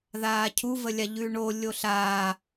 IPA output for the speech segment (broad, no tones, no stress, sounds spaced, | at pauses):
ð aː cʰ u v ə lʲ a ʎ ʉ ɳ o lʲ o ɬ aː